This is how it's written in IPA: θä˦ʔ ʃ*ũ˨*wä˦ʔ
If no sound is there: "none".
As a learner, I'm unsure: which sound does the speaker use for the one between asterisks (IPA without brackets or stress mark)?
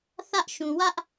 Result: ũ˨